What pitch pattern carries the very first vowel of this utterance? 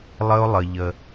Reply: high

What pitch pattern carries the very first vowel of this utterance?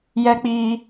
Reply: high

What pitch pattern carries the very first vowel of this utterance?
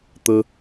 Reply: high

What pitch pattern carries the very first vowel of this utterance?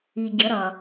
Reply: low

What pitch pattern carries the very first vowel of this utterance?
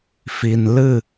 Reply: low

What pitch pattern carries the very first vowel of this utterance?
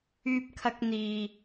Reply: high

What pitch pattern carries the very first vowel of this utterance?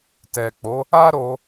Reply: low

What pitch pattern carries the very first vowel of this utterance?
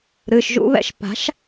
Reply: low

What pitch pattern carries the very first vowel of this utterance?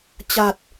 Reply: low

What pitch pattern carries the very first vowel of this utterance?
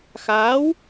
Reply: rising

